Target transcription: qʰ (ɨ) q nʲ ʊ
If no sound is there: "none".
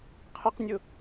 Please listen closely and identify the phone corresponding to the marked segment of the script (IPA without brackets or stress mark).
ɪ